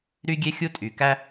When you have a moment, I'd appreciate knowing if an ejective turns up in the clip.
yes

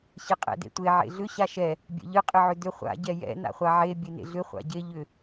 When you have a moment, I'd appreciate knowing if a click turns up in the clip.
no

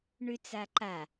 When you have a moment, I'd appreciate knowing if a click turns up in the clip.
yes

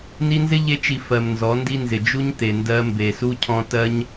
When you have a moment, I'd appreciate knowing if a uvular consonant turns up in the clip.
no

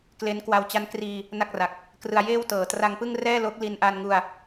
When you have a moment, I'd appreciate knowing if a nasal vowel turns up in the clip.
no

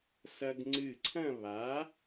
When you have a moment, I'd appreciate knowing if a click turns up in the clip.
yes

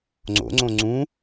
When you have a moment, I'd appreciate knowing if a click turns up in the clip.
yes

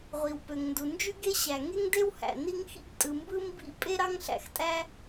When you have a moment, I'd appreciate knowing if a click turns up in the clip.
no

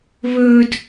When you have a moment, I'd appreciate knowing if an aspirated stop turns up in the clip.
no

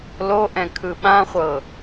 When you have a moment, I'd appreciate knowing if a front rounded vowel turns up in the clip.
no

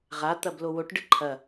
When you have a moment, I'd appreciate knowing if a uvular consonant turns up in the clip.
yes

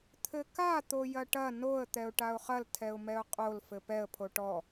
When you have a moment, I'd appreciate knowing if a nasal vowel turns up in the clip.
no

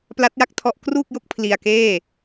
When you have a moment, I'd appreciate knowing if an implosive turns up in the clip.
no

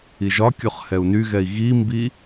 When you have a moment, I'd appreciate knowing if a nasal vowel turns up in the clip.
no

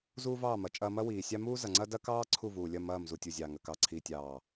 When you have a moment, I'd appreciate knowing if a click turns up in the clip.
yes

